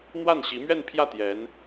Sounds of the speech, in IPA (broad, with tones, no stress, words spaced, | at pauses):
n̪wa˥˩nɕi˧˥mɥɛ˥˧npʰjä˥˩ t̪jɛ˧˥n